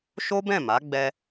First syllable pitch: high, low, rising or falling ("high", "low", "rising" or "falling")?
high